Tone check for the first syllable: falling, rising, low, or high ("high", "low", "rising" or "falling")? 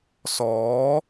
rising